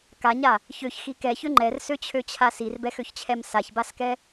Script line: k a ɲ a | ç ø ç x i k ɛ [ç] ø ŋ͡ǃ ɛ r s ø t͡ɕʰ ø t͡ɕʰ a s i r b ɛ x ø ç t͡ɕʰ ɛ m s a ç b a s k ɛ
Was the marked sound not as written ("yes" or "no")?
no